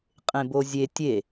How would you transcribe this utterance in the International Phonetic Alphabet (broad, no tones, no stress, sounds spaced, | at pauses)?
qʼ ẽ b o zʲ e tʲ e